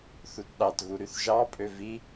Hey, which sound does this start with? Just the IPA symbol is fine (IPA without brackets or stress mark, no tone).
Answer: θ